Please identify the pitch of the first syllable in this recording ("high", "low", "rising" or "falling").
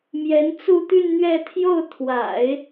rising